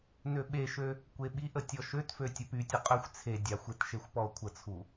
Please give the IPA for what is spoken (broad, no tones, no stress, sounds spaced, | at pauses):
n ø ɓ e ʃ ø | kʷ e ɓ i ʔ ə tʲ ɔ ʃ ø t f ø tʲ ə p y tʲ ə qʼ ø xʷ t͡sʰ e dʲ a xʷ e t ʃ e xʷ p ɔ o̯ kʷʰ ə t͡sʰ u